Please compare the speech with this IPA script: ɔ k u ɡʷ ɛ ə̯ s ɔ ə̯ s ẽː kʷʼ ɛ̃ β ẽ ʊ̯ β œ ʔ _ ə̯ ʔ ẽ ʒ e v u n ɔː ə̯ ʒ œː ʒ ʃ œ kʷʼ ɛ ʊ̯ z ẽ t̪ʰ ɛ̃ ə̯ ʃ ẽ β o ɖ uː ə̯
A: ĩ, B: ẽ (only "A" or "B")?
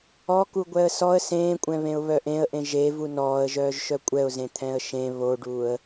B